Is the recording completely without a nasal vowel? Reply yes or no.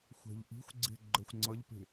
yes